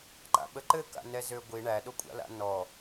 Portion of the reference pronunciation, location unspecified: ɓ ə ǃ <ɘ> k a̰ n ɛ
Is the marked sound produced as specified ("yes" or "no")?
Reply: yes